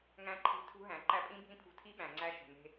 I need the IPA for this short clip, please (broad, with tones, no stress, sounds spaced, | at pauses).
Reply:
ŋ æ̃˧ ǃʰ e̤˧ tʰ ṳ˧ ɦ æ̃˨ ǃ æ˧ pʼ ĩ˦ bʱ ĩ˦ pʰ ṳ˧ tʰ i˦ ɓ æ̃˨ ŋ͡ǀ æ˧ ʃ ṳ˨ n e̤˧